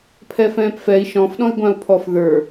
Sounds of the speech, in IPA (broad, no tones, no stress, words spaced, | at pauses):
pʰɛfɛ̃ːpfɛi̯ ʃɔ̃fɗɔ̃i̯ ɡʷãu̯pʰɔf ðə˞